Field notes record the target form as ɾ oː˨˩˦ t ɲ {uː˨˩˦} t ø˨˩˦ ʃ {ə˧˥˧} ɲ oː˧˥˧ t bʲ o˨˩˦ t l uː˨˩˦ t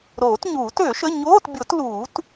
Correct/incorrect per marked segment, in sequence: correct, correct

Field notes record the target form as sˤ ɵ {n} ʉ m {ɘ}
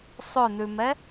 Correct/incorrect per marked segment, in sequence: correct, incorrect: ɛ

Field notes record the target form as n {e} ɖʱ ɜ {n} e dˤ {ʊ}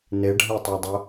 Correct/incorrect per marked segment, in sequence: correct, incorrect: tˤ, correct

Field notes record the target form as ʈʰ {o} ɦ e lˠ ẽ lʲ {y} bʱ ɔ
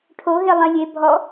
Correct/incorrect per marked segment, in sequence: correct, incorrect: e

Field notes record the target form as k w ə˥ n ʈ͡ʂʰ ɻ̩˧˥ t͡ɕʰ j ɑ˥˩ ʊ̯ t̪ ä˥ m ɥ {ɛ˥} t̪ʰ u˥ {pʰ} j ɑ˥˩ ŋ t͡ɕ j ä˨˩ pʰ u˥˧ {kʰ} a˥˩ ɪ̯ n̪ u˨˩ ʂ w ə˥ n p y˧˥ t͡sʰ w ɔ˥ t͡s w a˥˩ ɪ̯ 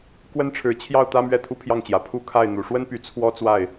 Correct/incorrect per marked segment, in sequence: correct, correct, correct

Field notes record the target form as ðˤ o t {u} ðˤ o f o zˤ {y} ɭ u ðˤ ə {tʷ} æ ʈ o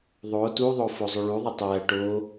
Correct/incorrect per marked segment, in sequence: correct, correct, incorrect: tˤ

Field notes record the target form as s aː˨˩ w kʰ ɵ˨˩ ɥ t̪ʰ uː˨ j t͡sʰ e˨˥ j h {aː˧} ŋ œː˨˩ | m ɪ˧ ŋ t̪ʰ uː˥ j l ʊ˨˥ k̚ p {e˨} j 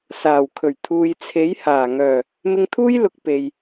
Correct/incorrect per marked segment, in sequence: incorrect: aː˨˩, correct

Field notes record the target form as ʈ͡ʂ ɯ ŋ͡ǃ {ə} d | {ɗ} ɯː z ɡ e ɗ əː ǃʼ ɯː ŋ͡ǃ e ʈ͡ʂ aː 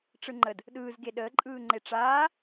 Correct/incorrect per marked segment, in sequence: correct, correct

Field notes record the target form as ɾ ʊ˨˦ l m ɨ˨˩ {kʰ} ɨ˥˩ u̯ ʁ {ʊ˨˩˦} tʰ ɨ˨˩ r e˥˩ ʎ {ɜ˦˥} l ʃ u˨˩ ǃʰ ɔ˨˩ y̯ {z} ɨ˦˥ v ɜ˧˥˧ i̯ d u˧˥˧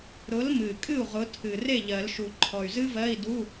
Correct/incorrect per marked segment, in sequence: incorrect: kʼ, incorrect: ʊ˨˦, incorrect: ɜ˨˩˦, correct

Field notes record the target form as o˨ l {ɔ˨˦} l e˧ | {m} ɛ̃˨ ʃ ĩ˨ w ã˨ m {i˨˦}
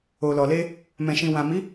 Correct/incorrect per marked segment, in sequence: incorrect: ɔ˨, correct, correct

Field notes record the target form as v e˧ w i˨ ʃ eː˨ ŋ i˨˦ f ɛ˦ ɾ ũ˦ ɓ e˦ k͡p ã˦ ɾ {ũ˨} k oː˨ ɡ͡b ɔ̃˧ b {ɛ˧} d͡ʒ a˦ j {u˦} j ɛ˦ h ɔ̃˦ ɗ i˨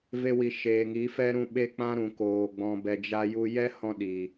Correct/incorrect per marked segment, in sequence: correct, correct, correct

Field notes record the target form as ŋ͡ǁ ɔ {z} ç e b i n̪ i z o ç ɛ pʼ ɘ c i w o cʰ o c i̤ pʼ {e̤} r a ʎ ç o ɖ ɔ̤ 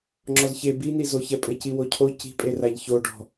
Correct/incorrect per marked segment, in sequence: correct, incorrect: e

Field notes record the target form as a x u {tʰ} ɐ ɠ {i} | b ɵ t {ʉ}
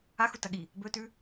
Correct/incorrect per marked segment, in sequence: incorrect: t, correct, correct

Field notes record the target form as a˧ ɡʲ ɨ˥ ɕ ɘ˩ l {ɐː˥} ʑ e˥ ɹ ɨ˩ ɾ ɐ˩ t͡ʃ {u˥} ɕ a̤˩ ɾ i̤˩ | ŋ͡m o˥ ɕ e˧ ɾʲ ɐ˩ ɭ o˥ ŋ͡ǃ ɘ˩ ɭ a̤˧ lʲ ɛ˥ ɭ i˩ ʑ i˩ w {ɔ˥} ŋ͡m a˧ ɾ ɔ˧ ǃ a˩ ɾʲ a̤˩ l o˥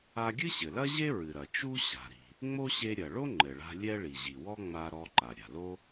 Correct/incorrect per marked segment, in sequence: incorrect: ɐ˥, correct, correct

